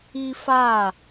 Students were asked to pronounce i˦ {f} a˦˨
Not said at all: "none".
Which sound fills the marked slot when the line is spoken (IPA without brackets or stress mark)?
f